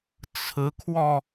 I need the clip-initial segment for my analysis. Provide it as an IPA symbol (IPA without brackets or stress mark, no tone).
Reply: t͡sʰ